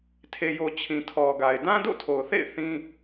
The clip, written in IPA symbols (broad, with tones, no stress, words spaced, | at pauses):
tʰe˨jo˨ t͡ɕʰĩ˨tʰɔ˨ɡa˨ɪ̯ dã˦do̰˦˨tʰo˨ʊ̯θḛ˦˨ɪ̯ θĩ˦